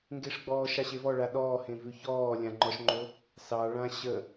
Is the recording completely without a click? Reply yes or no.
no